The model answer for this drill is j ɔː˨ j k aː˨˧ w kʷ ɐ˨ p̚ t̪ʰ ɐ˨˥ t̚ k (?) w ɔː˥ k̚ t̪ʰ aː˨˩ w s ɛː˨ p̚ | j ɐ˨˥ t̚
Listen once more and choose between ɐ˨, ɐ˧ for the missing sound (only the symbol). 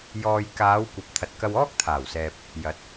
ɐ˧